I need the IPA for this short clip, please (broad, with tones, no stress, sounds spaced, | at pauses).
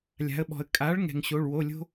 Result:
lʲ a̤˩˧ ə̯ ɓ ɔ̤˩ ə̯ kʼ a˩˥ ɭ ŋ ɛ̤˩ ŋ ɕ o˩˧˩ ɭ w o˩˧˩ lʲ o̤˦